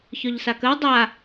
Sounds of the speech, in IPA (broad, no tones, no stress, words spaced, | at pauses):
çœʎsakəw dˤa